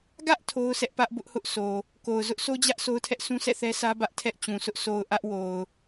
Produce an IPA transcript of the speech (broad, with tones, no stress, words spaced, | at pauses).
ɡä˦ʔ tʰo˦ʊ̯sʰɛ˦ʔpä˦ʔ bʊ˦ʔhʊ˦ʔso˨ | ko˨ʊ̯ zʊ˦ʔso˦d͡ʑä˦ʔ so˦ʊ̯tʰɛ˦ʔsʰũ˦sɛ̰˦˨ θɛ˦sä˦ bä˦ʔ tʰɛ˦ʔt͡ɕũ˨sʊ˦ʔ so˨ʊ̯ ʔä˦ʔwo˨ʊ̯